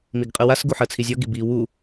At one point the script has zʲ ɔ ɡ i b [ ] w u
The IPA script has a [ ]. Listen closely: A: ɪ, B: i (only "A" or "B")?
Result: B